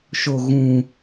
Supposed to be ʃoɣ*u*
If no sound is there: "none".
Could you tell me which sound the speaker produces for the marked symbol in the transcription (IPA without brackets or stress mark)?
ũ